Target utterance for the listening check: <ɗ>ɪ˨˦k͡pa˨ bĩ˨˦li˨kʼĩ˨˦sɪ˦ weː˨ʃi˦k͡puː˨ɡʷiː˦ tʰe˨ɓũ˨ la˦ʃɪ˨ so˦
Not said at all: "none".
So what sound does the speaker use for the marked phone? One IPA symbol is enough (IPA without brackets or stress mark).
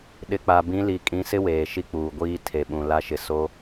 ɗ